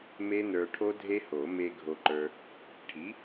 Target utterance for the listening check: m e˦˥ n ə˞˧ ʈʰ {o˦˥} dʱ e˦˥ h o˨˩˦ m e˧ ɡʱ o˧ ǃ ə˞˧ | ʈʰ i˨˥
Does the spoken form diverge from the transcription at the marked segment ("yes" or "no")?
no